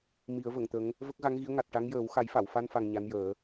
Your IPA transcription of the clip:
mi˨˩˦ə̯və˨˩˨ŋt̪ə˧˥ŋ | və˦˥k̚ɣa˧˥ŋɣi˧˥ə̯ ŋa˨˩t̚ʈa˧˥ŋjəː˨˩˦w xa˨˩˦jfa˨˩˨wfa˧nfa˨˩ŋ ɲa˧˥njəː˨˩˦

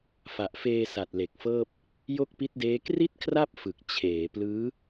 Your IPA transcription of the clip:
fa˨˩ʔfeː˧ sa˨˩t̚le˨˩k̚fɤː˥˩p̚ | jo˥˩k̚pi˦˥t̚deː˦˥ kri˥˩t̚kʰra˥˩p̚ fɯ˨˩k̚ t͡ɕʰeː˩˦ plɯː˦˥

